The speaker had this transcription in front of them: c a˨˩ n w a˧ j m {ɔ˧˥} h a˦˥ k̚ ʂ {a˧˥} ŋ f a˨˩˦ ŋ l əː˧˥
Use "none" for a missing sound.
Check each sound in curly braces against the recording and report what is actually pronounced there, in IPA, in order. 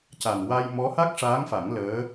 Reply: ɔ˧˥, aː˧˥

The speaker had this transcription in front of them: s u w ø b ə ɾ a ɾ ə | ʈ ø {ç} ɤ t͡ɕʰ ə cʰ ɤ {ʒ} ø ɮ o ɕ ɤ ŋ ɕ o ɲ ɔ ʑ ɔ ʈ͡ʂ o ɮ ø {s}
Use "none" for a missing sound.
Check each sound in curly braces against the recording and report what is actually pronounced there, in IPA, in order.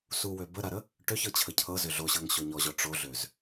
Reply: ç, z, z

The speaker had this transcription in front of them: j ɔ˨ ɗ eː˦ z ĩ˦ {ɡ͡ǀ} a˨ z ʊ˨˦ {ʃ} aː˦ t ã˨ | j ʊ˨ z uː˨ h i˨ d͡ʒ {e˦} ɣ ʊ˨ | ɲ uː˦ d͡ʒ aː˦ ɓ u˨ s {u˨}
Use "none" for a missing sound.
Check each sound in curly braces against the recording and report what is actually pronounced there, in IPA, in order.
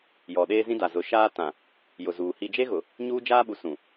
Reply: d, ʃ, e˦, ũ˨

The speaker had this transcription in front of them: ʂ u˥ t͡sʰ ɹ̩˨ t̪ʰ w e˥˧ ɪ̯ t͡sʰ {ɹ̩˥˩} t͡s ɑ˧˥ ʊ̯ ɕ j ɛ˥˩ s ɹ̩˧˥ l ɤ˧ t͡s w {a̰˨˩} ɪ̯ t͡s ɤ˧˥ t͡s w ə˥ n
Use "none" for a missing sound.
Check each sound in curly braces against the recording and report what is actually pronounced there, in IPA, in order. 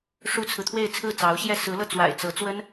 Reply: ɹ̩˥˩, a̰˨˩

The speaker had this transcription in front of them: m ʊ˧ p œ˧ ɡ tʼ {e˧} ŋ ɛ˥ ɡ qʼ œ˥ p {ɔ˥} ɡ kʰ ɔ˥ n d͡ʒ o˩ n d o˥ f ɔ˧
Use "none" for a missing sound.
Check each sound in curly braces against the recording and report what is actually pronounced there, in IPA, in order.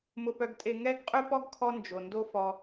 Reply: e˧, ɔ˥

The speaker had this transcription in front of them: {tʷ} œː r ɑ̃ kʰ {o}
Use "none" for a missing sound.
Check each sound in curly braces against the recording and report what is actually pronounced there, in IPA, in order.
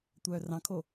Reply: tʷ, o

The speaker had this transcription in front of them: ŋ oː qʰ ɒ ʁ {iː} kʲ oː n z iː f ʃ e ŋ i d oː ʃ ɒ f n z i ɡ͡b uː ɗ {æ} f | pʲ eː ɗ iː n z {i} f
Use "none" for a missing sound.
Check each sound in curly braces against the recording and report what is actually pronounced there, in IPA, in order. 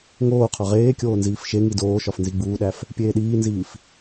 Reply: eː, æ, iː

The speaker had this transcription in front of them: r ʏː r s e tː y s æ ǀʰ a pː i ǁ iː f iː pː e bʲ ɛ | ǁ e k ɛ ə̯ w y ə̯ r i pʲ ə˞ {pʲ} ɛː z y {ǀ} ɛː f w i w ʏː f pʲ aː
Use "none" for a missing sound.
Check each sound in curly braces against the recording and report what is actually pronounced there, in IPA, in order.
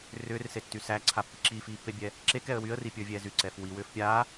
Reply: vʲ, ǀ

